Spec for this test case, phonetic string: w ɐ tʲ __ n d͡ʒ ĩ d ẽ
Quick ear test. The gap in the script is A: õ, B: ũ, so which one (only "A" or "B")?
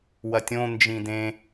A